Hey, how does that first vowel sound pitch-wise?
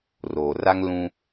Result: low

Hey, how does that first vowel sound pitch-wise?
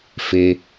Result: high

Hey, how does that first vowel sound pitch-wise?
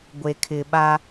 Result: low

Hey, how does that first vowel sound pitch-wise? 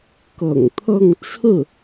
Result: low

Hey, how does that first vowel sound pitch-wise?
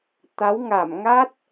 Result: rising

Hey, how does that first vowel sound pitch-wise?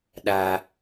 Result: high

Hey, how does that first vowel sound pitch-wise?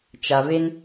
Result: low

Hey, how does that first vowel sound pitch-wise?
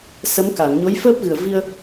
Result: rising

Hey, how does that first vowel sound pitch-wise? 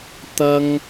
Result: high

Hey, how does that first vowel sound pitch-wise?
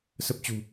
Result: low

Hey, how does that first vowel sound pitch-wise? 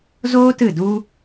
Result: high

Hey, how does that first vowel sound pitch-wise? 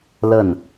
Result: falling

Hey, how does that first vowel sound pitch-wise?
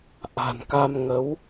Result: low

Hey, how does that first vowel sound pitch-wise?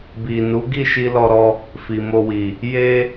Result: low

